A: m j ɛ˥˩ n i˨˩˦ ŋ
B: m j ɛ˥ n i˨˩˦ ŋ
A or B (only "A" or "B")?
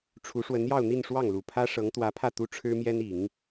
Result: B